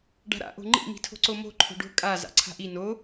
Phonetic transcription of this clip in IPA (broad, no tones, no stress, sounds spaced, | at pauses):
ɖ a̤ ɾ a̰ ʔ o̤ ŋ͡ǃ ḭ m i̤ tʰ o̤ ǀ o m o̤ ǃʰ o̤ ɖ o̤ kʼ a z a̰ ǀʰ a̤ ʔ i n o